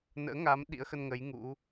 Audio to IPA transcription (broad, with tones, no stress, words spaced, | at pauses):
nə̰ː˧˥ŋa˨˦m ɗḭ˧˥ə̯xə˧nŋə˨˦j ŋṵ˧˥